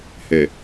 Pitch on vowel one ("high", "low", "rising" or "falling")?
low